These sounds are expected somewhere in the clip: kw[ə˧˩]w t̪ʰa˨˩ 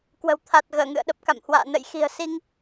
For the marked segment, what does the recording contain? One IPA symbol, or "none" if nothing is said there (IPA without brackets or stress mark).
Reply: ə̤˨˩